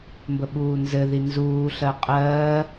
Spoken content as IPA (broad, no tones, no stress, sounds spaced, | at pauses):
m b ə ɓ uː n z ɘ ð i n z uː ɬ ɜ qʼ ɜː